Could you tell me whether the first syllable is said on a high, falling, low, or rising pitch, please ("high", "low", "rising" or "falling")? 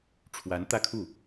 rising